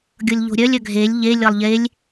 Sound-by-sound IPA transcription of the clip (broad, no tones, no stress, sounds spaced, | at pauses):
ɡʲ ɤ lʲ ʎ o̤ ɾʲ œ lʲ œ ɡʱ e lʲ ʎ e lʲ ɤ lˠ ʎ e lʲ